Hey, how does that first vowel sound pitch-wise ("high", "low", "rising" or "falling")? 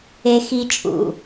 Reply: high